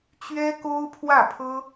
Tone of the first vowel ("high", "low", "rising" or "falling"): high